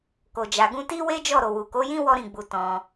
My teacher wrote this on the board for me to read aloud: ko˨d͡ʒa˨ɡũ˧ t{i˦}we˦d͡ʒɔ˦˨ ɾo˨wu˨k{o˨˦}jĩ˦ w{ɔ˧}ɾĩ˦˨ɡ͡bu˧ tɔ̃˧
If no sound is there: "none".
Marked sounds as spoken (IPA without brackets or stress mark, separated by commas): i˦, o˨˦, ɔ˦